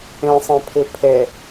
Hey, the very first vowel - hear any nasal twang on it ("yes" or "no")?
yes